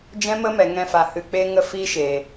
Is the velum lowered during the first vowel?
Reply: yes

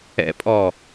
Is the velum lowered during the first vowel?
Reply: no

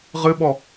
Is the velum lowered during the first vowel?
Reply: no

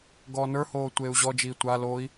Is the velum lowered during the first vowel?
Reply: no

